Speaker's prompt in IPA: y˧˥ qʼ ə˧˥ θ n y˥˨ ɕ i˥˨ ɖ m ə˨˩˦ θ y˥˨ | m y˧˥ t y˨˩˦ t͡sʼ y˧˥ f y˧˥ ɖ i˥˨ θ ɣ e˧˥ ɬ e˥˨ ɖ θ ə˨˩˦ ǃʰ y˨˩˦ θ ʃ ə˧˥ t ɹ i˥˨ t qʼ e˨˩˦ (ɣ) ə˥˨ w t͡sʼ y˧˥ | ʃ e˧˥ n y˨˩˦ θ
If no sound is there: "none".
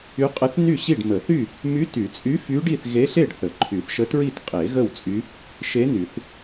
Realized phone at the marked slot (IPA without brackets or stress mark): ɣ